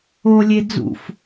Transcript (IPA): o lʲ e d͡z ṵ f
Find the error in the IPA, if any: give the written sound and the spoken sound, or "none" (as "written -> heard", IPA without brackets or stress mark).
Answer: none